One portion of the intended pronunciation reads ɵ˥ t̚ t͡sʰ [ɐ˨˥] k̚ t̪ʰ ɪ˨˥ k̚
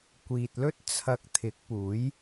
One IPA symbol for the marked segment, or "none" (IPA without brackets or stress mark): ɐ˧